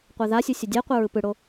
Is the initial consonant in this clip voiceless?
yes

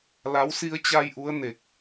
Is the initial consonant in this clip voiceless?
no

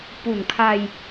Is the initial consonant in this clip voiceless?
yes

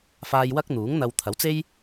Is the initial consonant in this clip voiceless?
yes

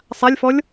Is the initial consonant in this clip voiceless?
yes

